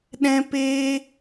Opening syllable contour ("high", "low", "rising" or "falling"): high